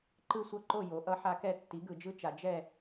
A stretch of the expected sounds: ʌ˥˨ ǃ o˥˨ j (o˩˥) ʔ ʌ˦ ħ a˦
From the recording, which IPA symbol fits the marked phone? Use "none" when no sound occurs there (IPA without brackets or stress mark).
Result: o˩˥